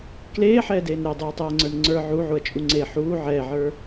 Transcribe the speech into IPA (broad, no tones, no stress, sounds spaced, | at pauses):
k l eː ħ ɛː d eː n ɾ ɛ dˤ uː tˤ ɛː ŋ͡ǀ ə˞ n ŋ͡ǀ ə˞ ʕ u ʕ u ɐ̯ t͡ʃʼ u ŋ͡ǀ e ħ uː ʕ ɛː ʕ ə˞